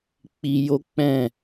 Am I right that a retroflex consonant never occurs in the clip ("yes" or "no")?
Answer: yes